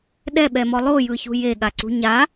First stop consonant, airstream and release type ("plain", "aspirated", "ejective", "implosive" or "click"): implosive